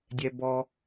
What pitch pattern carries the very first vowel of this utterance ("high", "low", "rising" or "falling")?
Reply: low